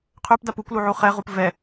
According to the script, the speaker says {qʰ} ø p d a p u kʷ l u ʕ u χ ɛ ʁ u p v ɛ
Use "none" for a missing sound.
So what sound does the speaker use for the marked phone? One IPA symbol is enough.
qʰ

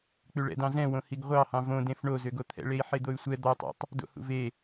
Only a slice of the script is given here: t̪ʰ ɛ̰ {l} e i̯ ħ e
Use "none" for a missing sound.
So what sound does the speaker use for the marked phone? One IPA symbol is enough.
ɭ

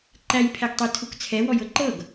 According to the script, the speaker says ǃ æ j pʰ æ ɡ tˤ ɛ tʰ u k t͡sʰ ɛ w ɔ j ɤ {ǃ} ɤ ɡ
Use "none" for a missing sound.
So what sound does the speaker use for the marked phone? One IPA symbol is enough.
ǃ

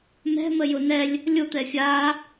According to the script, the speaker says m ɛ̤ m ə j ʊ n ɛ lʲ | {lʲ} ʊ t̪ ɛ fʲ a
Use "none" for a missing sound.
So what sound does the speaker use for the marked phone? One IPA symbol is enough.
lʲ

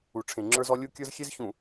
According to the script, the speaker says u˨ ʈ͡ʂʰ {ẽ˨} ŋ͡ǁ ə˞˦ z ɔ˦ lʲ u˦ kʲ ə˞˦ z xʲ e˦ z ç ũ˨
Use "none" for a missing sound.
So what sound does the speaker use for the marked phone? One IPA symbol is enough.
ẽ˨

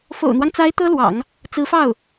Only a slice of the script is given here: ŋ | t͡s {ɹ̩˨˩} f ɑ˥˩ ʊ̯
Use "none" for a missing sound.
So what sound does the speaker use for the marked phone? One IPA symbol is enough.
ɹ̩˧˥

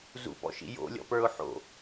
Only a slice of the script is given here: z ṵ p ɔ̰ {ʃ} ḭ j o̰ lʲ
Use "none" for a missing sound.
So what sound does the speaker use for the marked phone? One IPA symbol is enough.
ʃ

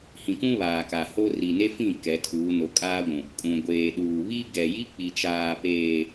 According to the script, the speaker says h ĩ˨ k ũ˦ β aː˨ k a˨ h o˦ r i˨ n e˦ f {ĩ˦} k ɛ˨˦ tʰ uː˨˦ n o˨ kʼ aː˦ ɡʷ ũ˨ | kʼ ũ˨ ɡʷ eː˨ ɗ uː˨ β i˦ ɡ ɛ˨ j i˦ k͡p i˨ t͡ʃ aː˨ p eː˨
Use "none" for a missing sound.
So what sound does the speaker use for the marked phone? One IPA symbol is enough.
ĩ˦˨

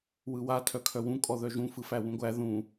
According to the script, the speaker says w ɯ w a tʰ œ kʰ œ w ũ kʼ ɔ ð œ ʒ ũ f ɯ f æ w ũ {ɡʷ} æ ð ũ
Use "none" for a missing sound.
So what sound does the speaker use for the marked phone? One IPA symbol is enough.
ɡʷ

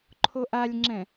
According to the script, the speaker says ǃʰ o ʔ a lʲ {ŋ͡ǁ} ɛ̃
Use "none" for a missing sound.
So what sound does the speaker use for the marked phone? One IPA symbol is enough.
ŋ͡ǁ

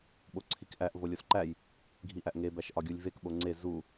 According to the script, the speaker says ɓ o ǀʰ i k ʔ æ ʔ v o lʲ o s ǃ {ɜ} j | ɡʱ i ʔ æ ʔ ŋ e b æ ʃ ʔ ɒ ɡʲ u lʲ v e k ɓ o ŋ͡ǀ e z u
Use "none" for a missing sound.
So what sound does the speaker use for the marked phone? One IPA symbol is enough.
æ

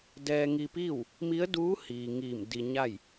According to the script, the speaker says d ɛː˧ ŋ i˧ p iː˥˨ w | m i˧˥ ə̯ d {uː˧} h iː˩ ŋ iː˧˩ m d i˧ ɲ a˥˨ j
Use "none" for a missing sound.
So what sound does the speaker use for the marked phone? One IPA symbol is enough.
uː˧˥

